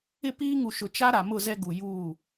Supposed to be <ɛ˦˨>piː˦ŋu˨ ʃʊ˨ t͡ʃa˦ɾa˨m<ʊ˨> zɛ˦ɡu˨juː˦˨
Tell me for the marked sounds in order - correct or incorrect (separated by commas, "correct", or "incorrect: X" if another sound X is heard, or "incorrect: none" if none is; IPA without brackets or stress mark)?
incorrect: ɪ˦˨, incorrect: ʊ˦˨